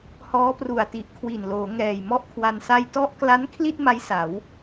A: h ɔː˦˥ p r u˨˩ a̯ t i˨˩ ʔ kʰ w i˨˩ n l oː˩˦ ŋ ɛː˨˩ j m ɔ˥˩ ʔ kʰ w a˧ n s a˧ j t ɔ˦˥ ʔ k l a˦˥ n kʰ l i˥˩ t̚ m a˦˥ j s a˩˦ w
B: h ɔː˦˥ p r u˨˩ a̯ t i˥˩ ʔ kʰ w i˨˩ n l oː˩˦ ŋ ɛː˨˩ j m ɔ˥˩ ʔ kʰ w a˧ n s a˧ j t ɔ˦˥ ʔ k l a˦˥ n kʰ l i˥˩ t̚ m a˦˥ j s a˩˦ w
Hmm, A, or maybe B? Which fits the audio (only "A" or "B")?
A